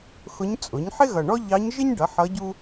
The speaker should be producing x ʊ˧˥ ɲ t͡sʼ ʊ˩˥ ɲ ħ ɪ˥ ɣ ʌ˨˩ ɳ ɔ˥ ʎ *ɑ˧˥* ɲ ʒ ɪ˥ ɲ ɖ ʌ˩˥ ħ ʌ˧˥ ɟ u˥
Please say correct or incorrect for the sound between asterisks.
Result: correct